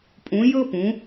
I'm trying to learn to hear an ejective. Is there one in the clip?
yes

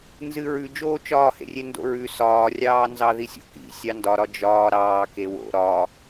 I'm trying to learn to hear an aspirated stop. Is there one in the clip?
no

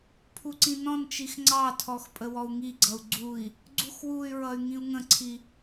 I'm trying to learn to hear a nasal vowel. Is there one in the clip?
yes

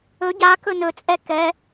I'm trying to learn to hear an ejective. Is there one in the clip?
yes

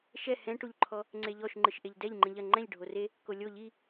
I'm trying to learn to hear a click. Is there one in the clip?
yes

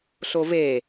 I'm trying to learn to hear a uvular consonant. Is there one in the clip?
no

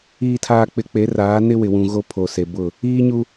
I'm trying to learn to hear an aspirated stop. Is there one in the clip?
yes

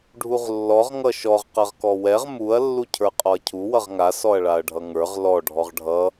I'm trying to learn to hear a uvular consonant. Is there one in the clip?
yes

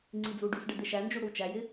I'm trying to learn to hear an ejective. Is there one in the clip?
no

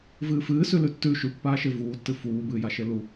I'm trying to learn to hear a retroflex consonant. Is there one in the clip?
no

